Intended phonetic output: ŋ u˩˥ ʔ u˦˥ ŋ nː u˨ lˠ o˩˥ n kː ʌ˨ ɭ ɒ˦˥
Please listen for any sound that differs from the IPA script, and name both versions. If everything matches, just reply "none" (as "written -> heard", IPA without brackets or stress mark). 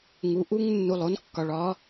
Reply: ʌ˨ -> ɒ˨